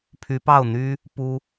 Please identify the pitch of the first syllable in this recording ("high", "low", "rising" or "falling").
rising